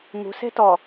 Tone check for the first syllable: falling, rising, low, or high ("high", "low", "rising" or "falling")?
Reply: low